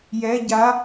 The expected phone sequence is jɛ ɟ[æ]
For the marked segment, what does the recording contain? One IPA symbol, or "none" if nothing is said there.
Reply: a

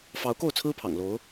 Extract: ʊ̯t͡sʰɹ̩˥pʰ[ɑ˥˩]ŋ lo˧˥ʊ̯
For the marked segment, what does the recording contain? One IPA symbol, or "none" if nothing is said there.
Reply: ɑ̰˨˩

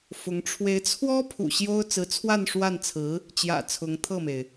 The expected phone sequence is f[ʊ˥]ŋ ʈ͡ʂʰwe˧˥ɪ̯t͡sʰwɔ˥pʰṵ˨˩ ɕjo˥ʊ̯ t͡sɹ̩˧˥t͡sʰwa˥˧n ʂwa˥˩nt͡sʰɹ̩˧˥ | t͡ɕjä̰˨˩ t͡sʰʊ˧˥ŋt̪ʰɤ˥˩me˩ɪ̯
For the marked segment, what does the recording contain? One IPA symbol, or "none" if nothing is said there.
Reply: ʊ˧˥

